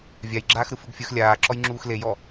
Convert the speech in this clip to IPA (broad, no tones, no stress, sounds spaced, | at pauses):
vʲ a j ɡ͡ǁ aː x ɾ ɯ f ɯ ɡ fʲ ɯ x lʲ aː ǁ ɔ j ŋ͡ǁ uː x l e j ɔ